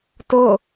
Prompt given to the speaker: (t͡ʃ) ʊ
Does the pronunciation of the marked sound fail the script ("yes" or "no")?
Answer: yes